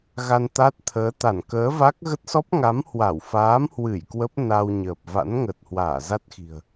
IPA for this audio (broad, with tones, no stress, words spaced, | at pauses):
ɣa˧nt̪a˦˥t̚t̪ʰəː˨˦ t̪a˧˩nkəː˨˦va˦˥k̚ ɣə˦˥t̚sɔ˦˥p̚ŋa˨˦mhwa˧˩w faː˨˦mhwɨ˧˩j kwə˦˥p̚ na˧wɲəː˨˩p̚ va̰˧˥nŋə˨˩t̚ hwaː˧˩za˦˥t̚xi̤˨˩ə̯